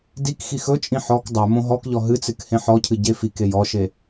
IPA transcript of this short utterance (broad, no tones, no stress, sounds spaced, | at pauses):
d i k x i x ɵ t͡ʃʼ ĩ ħ ɔ k dˤ ɵ m õ ɦ ɔ k ʎ ɔ ɦ ɨ t͡s ɨ k h ẽ ħ ɔ cʰ ɨ ɟ e f i k e j ɔ ʃ e